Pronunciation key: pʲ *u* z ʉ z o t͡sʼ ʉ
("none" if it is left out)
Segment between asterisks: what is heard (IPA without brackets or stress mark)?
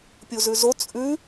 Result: u